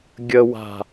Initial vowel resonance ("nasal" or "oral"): oral